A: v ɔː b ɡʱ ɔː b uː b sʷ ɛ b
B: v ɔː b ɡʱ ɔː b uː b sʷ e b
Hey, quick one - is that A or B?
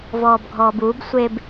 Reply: B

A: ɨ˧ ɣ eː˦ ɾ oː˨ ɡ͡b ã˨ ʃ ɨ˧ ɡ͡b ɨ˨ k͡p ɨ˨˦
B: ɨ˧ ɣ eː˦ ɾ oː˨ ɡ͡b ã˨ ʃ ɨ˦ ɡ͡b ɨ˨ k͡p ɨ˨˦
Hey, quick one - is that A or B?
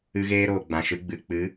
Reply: B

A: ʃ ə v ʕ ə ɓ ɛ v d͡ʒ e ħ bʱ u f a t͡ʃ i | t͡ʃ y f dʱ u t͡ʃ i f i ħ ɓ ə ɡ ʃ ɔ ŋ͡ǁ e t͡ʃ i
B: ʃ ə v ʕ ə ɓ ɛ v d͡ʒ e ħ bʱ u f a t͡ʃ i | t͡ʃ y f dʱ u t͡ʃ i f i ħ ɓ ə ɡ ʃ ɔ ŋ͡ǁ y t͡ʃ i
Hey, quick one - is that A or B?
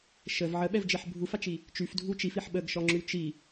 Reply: B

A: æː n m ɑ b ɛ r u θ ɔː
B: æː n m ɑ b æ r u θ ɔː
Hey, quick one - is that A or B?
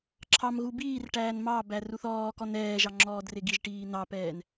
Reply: B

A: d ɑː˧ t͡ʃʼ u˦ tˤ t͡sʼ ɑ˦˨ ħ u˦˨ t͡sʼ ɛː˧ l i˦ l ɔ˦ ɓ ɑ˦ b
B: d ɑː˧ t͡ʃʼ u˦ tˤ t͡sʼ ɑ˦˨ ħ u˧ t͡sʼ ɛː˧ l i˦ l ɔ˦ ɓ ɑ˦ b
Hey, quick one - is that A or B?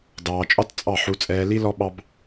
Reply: B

